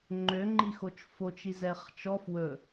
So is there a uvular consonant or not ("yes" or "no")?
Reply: yes